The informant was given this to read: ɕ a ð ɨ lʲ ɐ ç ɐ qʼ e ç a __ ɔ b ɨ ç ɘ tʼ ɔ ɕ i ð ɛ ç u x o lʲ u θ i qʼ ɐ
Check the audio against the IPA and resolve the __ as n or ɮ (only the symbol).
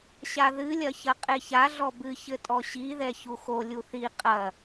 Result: ɮ